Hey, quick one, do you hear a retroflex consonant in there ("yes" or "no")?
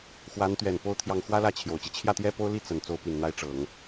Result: yes